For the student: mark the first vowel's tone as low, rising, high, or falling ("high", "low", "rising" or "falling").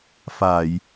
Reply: low